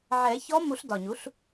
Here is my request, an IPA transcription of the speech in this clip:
ʕ ɛː˨˩˦ ç ɔ˧˥ m u˨˩˦ ɬ d ɒ˨˩ ɲ u˩˥ ɬ

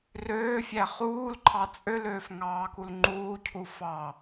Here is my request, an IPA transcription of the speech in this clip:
r øː fʲ æ χ uː l ǃʰ ɑ t͡sʼ ø l øː f ŋ ɑː k u l ŋ͡ǃ uː cʰ u f ɑ

